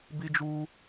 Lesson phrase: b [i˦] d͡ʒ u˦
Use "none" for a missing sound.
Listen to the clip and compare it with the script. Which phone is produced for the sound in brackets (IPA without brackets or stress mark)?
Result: i˦